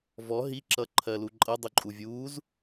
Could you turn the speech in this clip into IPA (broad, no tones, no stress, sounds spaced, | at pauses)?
v ɔ ɦ i ǁ ʌ ǃʰ ɜ l u ǃʼ ʌ dˤ u ǃʼ u vʲ uː z